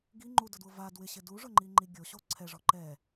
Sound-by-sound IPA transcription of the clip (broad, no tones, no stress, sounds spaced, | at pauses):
ɡ i ŋ͡ǃ u d ʊ d w ʊ v a d w ɪ ɕ ɪ d u ʐ ʊ ŋ͡ǃ i ŋ͡ǃ i ɡʲ o ɕ o ǀʰ ɛ ʐ ɔ ǃ ɛ